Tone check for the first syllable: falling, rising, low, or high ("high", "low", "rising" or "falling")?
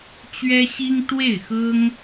high